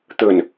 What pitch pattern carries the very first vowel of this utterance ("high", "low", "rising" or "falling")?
low